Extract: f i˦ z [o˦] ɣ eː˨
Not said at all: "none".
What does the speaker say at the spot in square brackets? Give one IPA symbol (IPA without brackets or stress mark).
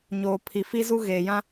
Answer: u˦